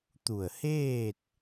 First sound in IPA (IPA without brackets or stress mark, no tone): t̪